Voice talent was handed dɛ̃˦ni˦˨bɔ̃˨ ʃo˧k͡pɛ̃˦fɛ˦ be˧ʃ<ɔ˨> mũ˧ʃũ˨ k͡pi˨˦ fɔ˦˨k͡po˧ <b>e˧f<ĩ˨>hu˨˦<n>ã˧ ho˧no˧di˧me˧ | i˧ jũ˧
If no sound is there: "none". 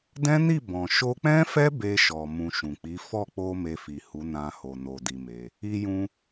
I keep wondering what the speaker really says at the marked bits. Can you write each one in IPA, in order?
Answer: ɔ˨, m, i˨, n

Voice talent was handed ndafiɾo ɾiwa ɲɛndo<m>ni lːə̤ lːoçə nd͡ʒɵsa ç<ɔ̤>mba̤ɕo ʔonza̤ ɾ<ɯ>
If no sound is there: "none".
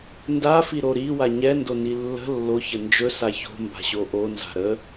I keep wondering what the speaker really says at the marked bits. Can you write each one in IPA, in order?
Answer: none, o̤, ə

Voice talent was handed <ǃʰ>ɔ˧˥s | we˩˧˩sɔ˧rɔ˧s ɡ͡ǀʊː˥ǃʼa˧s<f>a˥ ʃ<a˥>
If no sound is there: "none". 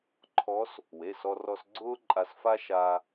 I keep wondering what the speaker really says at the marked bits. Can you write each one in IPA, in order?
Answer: ǃʰ, f, a˧

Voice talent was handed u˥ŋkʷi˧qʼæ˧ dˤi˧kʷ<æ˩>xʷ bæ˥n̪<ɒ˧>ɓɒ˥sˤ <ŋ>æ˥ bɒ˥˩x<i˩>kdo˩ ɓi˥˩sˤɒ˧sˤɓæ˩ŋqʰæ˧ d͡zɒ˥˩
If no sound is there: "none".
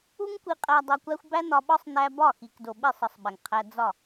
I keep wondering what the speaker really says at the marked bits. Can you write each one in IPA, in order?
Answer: æ˥, ɒ˧, n̪, i˩

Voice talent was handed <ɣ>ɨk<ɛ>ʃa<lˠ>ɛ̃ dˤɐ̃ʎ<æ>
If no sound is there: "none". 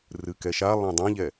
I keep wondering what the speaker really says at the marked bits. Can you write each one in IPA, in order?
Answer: r, ɛ, lˠ, ɛ

